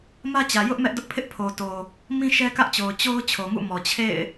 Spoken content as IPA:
m ä˦ t͡ɕ ä˨ j ʊ˦ ʔ m ɛ˦ ʔ d ʊ˦ ʔ pʰ ɪ˦ ʔ pʰ o˨ t o˨ | m ĩ˦ ʃ ɛ˦ k ä˦ ʔ t͡ɕ o˨ ʊ̯ t͡ɕ o˦ ʊ̯ t͡ɕʰ o˨ ŋ ṵ˦˨ m ɔ˨ t͡ɕʰ ḛ˦˨ ɪ̯

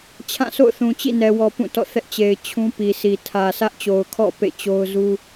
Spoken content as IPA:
t͡ɕʰ ã˦˨ sʰ o̰˦˨ ʊ̯ θ ũ˨ t͡ɕ ḭ˦˨ n ɛ˨ w ɔ˨ p ũ˦˨ t ɔ̰˦˨ θ ɛ˦ ʔ t͡ɕ e˨ ɪ̯ t͡ɕʰ ũ˦ p i˨ s i˨ tʰ ä˨ s ä˦ ʔ t͡ɕ o˨ ʊ̯ kʰ ɔ̰˦˨ p ḛ˦˨ t͡ɕ o˦ ʊ̯ z u˦

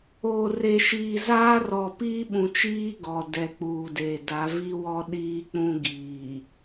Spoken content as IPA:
oː˨ r e˨ ʃ iː˨ z aː˦ r ɔ˨ p iː˦ ɓ ũ˨ t͡ʃ iː˦ ɡ ɔ˨ d ɛ˨ k͡p uː˨ d eː˨ d a˨˦ v i˦ w ɔ˦ ɗ iː˦ k͡p ũ˦ ɡ iː˨

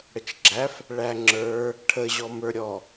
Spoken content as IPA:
ɽ ə t͡ʃ ɡ͡ǁ æ f | ɭ æ ŋ͡ǁ ə˞ | ʈʰ ə ʑ ɔ m ə˞ ɾʲ ɔ

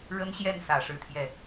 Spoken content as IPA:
ɻ ə˥ n ɕ j ɛ˥˩ n s ä˨˩ ʂ ɻ̩˥˧ t̪ʰ j ɛ˥˩

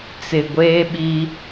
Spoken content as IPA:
t͡s ɪ˨ ɡʷ eː˦ ɓ i˦

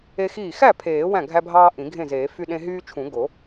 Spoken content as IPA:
e˦ x iː˥˩ x æ˥˩ pʰ eː˨˩˦ w æ̃˥˩ ɡʱ æ˦ bʱ ɑː˦ ʔ ĩ˨˩˦ ɡʱ ẽ˥˩ z eː˨˩˦ f y˦ ɗ ẽ˦ ɦ yː˦ t͡ʃʰ ũ˨˩˦ ɡ o˨˩˦

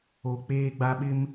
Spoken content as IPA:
o˨ k͡p eː˦ ɡ͡b a˦ ɓ ɪ˦ m

